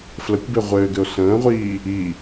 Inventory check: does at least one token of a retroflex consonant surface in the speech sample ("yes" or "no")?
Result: no